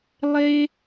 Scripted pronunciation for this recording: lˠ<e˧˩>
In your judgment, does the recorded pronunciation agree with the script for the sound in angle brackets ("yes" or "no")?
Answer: no